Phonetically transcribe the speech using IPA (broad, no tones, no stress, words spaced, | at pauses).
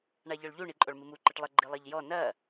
ɳaʎɔɭʎu ɳiǃʼɔɭmɨmu ǃɨʈlˠɘ ɡ͡ǃilˠɐʎjɔ nɐ